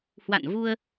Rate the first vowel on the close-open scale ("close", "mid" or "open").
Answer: open